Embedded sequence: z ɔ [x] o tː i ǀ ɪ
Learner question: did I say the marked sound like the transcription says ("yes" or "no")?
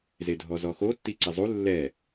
yes